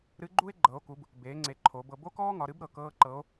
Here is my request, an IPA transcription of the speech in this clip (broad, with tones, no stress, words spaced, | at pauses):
ɾɨ˧˥ɡ͡ǃu˥e̯ ɡ͡ǃɤ˩˧o̯ku˩˧b | beː˩˧ŋ͡ǀe˩˧ ǃʰo˩˧ bɤ˧ bo˥kɔː˥ŋɒ˩˧ɾɨ˧˥b ɾɤ˩ kɤː˥ǃɤ˧˥o̯